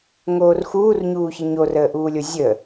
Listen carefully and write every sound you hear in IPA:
ŋ oː r x uː r ɲ uː ç ə ɲ o r əː ʔ uː lʲ o zʲ ə

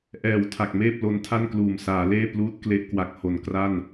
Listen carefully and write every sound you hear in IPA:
ʔ ɛː˨˩ w tʰ a˨˩ k̚ m eː˥˩ p̚ l o˦˥ n tʰ a˥˩ n k l uː˨˩ m s aː˩˦ l eː˥˩ p l uː˦˥ t̚ k l e˦˥ ʔ k w a˨˩ k̚ h o˨˩ n k r a˥˩ n

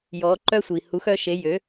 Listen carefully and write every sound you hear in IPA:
j ɔ˩˧ ǃ œ˧ sʷ i˩ h u˩˧ x œ˧ ʃ e˩˧ j ø˩˧

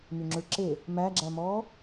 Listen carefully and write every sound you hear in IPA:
m y ŋ͡ǁ ø ɭ ǁ e | m æ ɡ͡ǁ æ m ɔː

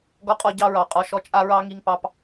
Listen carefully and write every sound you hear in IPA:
ɡ ɔ˧ qʼ ɔ˧ ɟ ɑ˧ ɹ ɑ˨ qʼ ɔ˧ ʃ ɔ˧ t͡ʃʼ a˧ ɹ ɑ˧ ŋ i˧ ŋ p ɑ˧ p

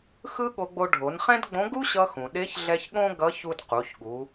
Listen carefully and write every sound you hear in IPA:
x ɯ˥ ɠ o˧ ɡ͡b o˧ ɖʱ o˩˧ n χ ɛ̃˥ d ɡ͡b õ˧˥ ɡ u˥ ɕ ʌ˧ x ũ˩ ɗ e˧˥ ç ɮ ɛ˧ ç ɠ õ˥ ɡ ʌ˧˥ ç u˧ d q u˩˧ ç ɠ u˩˧

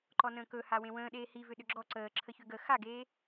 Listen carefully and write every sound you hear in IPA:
ǃ ɔ n ə̃ː k ɵ h a w ẽ w ə̃ː ɗ eː h i v ʏ ɗ ʏ ɡ͡ǁ ɔ ǀ əː ǁʰ ə ç ʏ ɡ ə x a ɡ eː

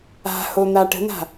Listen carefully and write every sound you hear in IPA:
a̤ h o n̪ a ʈ ə̤ n̪ a̤

